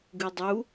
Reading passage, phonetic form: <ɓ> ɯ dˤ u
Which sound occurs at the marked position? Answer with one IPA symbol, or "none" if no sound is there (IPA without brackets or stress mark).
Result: ɡ